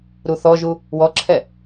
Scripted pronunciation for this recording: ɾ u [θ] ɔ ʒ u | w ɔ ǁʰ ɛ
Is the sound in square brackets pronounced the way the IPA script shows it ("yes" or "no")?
yes